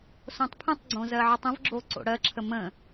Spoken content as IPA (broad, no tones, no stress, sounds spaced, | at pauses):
s õ tˤ pʰ ə̃ tˤ ɡ͡ǀ õ z ɜ ʕ ə tˤ ə̃ v ɡ͡ǁ o ǀ o̰ ɽ ɜ ǁʰ ə m ə̃